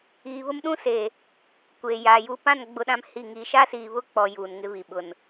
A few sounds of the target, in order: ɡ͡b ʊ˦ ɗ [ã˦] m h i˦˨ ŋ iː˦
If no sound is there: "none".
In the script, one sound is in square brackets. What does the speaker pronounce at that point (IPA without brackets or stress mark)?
ã˦